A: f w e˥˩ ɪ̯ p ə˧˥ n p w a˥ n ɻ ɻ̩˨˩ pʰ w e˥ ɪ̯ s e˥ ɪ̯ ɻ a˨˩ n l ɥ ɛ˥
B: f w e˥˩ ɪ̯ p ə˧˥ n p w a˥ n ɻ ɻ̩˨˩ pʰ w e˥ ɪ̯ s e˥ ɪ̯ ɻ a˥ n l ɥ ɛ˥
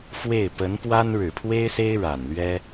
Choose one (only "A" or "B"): A